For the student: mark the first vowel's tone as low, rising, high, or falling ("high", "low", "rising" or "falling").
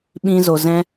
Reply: high